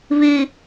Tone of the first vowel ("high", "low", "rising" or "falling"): high